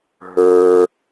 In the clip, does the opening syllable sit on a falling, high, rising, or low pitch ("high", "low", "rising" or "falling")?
low